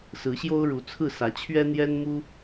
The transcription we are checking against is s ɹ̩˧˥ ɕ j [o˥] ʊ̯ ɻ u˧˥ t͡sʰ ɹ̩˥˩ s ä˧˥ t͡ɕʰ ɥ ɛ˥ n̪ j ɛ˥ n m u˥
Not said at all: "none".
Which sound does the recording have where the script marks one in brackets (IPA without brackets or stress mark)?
o˥